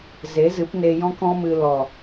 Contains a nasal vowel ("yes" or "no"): yes